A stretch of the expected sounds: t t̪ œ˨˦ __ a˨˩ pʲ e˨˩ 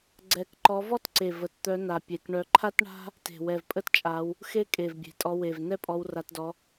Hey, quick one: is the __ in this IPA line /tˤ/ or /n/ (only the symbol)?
n